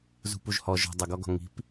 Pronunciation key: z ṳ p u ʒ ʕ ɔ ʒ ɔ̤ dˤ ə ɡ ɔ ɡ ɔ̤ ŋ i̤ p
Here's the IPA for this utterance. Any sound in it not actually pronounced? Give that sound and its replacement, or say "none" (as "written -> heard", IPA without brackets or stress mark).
ʕ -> h